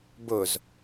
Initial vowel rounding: rounded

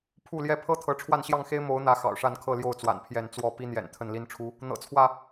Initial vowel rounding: rounded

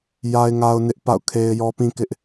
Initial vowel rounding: unrounded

